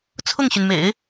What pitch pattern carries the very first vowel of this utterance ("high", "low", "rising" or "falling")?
falling